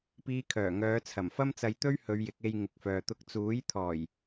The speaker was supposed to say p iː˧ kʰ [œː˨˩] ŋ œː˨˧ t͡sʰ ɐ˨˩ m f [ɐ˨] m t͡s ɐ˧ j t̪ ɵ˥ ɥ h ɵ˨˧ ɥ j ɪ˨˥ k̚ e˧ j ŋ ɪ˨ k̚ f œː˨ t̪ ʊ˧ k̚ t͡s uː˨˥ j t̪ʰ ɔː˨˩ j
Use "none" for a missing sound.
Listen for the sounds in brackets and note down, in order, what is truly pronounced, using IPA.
œː˨˩, ɐ˥

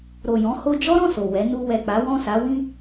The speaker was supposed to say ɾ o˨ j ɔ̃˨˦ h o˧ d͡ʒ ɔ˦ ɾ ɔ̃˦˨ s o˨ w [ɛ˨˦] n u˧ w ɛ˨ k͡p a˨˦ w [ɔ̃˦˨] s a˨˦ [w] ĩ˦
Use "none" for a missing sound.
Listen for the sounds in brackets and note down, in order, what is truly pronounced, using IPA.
ɛ˨˦, ɔ̃˦˨, w

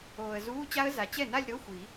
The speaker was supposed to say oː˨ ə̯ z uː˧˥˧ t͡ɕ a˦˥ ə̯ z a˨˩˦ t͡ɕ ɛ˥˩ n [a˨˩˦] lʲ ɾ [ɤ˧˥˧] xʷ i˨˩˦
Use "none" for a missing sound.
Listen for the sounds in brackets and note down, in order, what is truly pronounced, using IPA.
a˥˧, ɤ˧˥˧

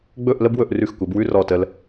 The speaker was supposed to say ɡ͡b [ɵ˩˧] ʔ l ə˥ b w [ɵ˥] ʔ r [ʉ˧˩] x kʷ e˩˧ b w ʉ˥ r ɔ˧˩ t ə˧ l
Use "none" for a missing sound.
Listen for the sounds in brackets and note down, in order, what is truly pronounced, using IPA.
ɵ˥˧, ɵ˧, ʉ˧˩

